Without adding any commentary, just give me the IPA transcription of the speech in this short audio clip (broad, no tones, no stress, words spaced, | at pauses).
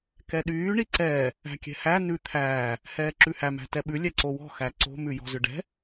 kɛɗyː ɳiǀɛː | æ̤kʲɛ̤hæ nʉ t̪ʰæː | hɛːǁʉhæ mæ̤tɛɓʉ lʲɛǀowɔ̤ xæǀo̤ mʉjɔ̤zʏɖɛ̤